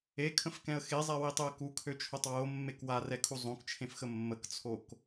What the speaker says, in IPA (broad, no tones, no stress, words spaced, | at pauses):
ekʰə̃fkɛ̃ə̯ xezˤɛwitˤøə̯ kukʰøt͡ʃʰotˤ womːek warɛkʰu zˤõkt͡ʃʰẽfxə mːəkt͡sʰok